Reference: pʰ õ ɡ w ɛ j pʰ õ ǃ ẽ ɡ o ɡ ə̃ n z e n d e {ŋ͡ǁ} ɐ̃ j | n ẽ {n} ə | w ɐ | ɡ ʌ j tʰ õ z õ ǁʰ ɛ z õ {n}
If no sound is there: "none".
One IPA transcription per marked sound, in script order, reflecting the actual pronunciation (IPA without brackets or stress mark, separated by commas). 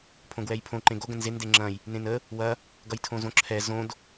ŋ͡ǁ, n, d